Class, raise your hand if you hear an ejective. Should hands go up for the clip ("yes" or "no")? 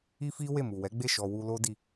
no